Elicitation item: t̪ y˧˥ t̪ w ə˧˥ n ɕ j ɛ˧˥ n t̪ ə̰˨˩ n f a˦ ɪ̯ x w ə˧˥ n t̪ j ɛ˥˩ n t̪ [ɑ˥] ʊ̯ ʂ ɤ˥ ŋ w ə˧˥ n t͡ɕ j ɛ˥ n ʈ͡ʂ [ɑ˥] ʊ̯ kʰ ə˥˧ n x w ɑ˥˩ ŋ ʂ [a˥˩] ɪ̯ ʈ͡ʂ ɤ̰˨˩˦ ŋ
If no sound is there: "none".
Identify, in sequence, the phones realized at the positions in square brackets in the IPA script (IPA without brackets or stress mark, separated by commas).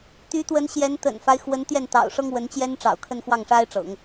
ɑ̰˨˩, ɑ̰˨˩, a˥